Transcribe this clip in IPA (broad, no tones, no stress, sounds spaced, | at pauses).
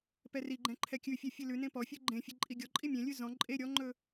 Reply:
p ɛ r i ɡ͡ǃ ɛ̃ ǃʰ ɛ kʲ ʉ fʲ ɛ fʲ ɨ l ʉ n ẽ p ɔ fʲ ɨ ɡ͡ǃ ẽ fʲ e ǃʼ i ɡʲ ɔ ǃʼ i mʲ ẽ lʲ ʉ z ɔ̃ ǃʼ e ɾʲ ɔ ŋ͡ǃ ɵ